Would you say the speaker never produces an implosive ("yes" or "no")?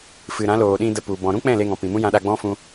no